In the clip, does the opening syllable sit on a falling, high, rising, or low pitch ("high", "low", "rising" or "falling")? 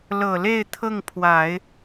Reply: low